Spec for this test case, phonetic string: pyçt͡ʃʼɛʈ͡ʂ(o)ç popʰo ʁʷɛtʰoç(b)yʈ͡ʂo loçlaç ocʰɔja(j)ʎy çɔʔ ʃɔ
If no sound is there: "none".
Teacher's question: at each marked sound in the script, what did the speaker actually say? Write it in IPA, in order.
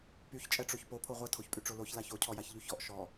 o, pʼ, ç

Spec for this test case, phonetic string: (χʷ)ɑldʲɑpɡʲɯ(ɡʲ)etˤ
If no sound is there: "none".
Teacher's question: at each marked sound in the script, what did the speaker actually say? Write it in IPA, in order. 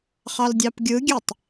χ, ɡʲ

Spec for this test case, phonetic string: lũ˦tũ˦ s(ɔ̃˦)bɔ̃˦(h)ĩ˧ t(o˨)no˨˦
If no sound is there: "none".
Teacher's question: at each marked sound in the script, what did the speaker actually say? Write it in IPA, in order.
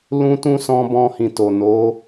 ɔ̃˦, h, o˨

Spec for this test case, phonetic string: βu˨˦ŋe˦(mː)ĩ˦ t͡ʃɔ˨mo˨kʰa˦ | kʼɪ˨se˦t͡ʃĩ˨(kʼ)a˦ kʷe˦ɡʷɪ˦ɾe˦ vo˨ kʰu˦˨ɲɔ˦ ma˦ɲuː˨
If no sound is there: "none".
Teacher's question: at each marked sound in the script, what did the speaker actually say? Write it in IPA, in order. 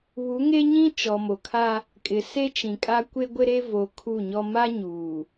ɲ, kʼ

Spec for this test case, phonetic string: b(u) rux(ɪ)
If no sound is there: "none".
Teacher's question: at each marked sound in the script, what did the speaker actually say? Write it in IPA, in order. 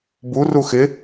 u, ɪ

